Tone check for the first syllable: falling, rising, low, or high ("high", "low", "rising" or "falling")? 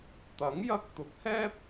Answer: rising